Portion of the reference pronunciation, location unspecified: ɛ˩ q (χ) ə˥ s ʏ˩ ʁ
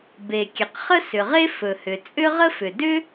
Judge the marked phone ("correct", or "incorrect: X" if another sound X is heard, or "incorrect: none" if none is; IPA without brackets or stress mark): correct